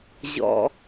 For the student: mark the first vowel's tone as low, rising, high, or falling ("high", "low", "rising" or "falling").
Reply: low